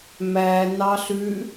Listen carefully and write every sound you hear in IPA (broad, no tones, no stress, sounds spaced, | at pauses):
m æ n ɑ ɬ ʉ